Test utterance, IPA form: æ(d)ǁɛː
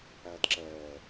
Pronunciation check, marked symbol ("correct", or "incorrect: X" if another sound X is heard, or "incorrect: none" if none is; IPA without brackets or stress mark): correct